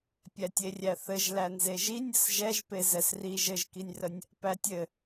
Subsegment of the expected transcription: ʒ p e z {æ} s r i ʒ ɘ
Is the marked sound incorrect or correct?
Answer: incorrect